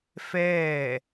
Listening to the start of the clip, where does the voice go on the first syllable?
falling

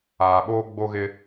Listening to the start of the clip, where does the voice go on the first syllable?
low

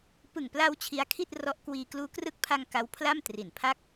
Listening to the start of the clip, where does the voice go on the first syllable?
low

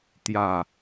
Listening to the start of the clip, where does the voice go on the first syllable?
low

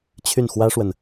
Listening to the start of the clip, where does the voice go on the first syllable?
falling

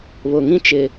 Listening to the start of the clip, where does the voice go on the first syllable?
low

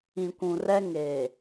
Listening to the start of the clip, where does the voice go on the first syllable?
low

